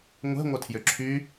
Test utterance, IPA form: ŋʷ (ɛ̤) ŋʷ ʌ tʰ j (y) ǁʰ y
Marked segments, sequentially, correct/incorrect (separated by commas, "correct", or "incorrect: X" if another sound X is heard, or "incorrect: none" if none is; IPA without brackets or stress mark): correct, incorrect: ʏ